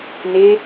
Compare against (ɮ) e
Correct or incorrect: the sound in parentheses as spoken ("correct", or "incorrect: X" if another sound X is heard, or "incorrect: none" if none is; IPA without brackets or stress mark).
incorrect: n